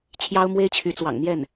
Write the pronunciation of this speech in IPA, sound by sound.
t͡ɕʰ j ɑ˥ ʊ̯ m w e˥ ɪ̯ t͡ɕʰ y˧˥ t͡s w ɑ̰˨˩ ŋ n̪ j ɛ˥˩ n

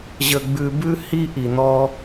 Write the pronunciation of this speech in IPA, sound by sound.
ʑ ə˧ ɡ͡b ʉ˧ b ʉ˥ h i˥ ʔ i˩ n̪ ɔ˧

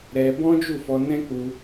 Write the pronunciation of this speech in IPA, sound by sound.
ɾ ɛ˧ b ɔ̃˦ d͡ʒ u˦˨ f ɔ˧ n ɛ̃˦ k͡p u˧

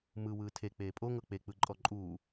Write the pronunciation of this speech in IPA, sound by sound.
m ɯ w ɯː tʰ e k͡p eː pʼ o ŋ ɤ k͡p e k͡p ɯ ǃʼ ɔ ǃʼ uː

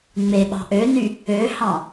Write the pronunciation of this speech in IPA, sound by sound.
ŋ͡m e ɓ ɑ̤ ʔ ø n y | ø h ɑ̃

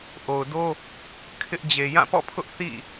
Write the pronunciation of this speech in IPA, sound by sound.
ʔ o˨ ʊ̯ d o˦ | kʰ ɪ˦ ʔ d͡ʑ e˨ j ã˦˨ p ɔ̰˦˨ pʰ ʊ˦ ʔ θ ḭ˦˨

